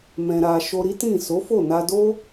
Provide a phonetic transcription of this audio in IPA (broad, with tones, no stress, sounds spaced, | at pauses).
m ɛ̃˧ ɾ a˧ ʃ o˧ ɾ i˦ t ĩ˦˨ s o˨˦ f o˦˨ n a˧ d o˦